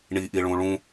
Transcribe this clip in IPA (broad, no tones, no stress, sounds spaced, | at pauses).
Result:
ɳ i ʔ i ɭ ũ ɭ ũ